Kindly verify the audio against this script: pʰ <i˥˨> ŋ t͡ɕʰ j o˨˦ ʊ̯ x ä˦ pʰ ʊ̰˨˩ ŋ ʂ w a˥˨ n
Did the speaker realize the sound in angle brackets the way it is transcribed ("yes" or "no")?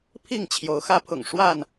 yes